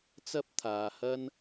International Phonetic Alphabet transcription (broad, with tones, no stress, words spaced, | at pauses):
t͡sɐ˥p̚t̪ʰaː˨hɐ˥n